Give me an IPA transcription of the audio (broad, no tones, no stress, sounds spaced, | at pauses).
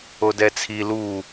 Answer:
o d ɛ t͡sʰ i l u